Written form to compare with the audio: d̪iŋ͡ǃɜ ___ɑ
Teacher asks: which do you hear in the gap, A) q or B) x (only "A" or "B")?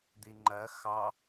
B